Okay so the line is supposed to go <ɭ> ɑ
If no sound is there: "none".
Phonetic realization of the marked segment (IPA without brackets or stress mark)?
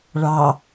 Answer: ɭ